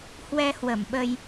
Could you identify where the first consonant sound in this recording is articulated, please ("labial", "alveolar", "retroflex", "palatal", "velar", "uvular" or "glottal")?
glottal